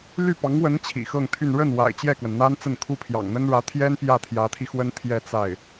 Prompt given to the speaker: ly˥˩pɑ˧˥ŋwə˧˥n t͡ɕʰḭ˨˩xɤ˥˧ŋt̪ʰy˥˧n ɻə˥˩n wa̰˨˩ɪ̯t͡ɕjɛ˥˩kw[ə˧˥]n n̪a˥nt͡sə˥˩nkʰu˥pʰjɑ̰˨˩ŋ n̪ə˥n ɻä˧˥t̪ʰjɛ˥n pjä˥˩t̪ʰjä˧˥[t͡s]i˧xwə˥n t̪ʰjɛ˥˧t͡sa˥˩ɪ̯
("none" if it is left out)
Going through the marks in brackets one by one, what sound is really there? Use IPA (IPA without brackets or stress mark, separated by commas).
ə˩, t̪ʰ